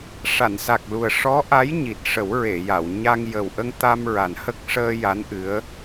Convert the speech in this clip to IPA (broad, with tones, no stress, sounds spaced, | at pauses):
ʂ a˨˩˨ n s a˨˩ k̚ l u˨˩ ə̯ ʂ ɔ˧˥ ʔ a˧˥ j ɲ i˨˩ t̚ ʂ ə˨˩˦ w ɹ e˨˩˨ j a˨˩˨ w ɲ a˧ ŋ j ə˨˩ w ʔ ə˧ ŋ t̪ a˧ m ɹ a˨˩ n h ə˦˥ k̚ ʂ əː˧ j a˧˥ n ʔ ɨ˧˥ ə̯